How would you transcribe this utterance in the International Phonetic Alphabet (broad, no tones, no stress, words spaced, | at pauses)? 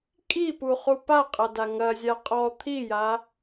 kʼipuχu paqʼɐda ŋɐzʲa qʼɔ t̪ʰija